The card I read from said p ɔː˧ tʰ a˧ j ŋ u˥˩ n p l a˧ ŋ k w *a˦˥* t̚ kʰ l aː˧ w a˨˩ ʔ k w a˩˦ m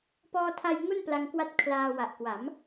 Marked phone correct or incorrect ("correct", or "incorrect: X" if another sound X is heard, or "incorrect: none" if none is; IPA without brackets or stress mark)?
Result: correct